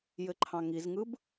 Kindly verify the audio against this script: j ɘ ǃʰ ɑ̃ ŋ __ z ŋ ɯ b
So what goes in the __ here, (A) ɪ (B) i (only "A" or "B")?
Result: B